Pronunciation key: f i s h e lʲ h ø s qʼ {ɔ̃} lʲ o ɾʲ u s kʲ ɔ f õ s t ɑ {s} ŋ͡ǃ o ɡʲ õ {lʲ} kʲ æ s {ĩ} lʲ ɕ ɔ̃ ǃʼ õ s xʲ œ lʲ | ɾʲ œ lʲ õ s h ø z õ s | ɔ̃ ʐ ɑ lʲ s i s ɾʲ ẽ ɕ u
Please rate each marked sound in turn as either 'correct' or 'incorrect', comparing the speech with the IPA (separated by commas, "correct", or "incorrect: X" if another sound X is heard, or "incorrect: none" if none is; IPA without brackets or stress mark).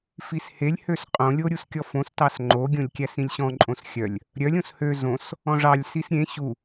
incorrect: õ, correct, correct, correct